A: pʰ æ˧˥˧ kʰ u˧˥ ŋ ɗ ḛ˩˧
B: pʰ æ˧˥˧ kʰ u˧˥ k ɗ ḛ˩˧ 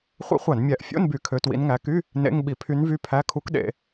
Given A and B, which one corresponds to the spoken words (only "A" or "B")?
B